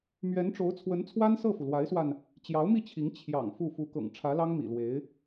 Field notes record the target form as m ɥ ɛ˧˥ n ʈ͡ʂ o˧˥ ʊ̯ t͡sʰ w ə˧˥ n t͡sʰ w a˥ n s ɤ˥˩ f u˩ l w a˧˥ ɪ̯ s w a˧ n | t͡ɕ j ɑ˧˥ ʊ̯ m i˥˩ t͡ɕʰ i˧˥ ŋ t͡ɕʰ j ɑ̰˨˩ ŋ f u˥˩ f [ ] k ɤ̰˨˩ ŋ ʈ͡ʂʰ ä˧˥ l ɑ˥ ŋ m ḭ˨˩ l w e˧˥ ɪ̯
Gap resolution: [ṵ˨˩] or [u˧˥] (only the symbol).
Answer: u˧˥